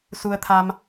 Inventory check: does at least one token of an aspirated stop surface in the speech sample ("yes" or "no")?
yes